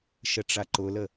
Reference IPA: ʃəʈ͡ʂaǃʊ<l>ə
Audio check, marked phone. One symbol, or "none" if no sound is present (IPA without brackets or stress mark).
l